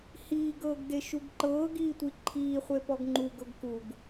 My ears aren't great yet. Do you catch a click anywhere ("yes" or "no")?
yes